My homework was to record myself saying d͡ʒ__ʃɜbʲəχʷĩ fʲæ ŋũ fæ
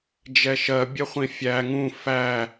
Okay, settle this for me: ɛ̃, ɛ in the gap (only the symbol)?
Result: ɛ